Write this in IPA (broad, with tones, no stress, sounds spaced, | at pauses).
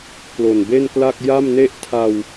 k l o˨˩ n b e˥˩ n k l a˥˩ k̚ j a˥˩ m n e˥˩ ʔ tʰ a˧ w